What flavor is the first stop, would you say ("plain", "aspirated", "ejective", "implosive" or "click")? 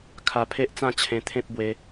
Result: aspirated